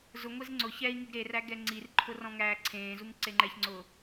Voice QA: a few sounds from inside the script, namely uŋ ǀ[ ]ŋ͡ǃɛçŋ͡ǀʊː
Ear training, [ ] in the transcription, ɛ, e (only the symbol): e